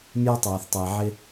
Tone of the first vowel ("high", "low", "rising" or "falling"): high